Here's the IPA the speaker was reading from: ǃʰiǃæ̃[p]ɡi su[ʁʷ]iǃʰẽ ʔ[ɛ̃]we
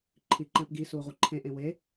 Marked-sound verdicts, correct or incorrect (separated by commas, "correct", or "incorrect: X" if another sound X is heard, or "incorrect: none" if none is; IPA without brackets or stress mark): correct, correct, incorrect: ẽ